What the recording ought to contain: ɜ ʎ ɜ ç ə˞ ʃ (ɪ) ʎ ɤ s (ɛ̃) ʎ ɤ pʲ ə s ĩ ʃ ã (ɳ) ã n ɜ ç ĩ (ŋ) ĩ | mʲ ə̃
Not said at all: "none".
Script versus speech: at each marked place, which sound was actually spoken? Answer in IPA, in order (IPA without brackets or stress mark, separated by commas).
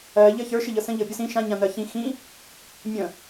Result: ɪ, ə̃, ɲ, x